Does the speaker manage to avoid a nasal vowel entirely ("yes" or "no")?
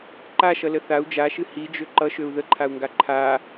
yes